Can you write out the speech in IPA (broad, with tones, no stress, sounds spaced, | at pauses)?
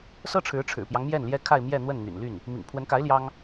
s ɤ˥ ʈ͡ʂʰ ɻ̩˧˥ ʈ͡ʂʰ ɻ̩˨˩ p j ɑ˦ ŋ m j ɛ˥˩ n l j ɛ˥ kʰ a˥˧ ɪ̯ m j ɛ˥˧ n̪ w ə˥˩ n n̪ y̰˨˩ n l y˥˩ n | m ḭ˨˩ ŋ pʰ w ə˧˥ n k a˧˥ ɪ̯ l j ɑ˥ ŋ